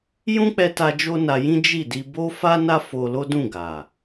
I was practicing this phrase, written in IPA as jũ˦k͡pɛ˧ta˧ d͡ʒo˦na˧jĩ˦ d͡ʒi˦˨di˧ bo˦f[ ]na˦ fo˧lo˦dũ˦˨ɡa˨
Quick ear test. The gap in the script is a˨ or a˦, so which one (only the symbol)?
a˦